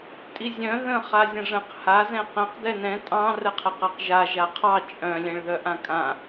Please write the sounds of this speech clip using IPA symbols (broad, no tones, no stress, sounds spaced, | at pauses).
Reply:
tʼ i zʲ œ̃ ð ə̃ χ a zʲ ə̃ ʐ ə̃ q h a z ɛ̃ q ɛ̃ q d ɛ n ɛ̃ tʼ ɑ̃ r ə qʰ ə q a q ʒ a ʒ a qʰ ɑ t͡ʃʼ œ̃ lʲ ɛ̃ ɭ ð œ ʔ ã kʼ ã